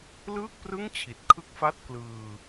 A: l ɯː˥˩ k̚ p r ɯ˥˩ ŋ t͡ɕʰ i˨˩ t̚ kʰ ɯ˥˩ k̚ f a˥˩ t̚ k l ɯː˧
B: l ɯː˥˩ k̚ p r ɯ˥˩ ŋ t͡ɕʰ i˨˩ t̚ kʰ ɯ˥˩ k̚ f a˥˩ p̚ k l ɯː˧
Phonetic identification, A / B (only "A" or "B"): A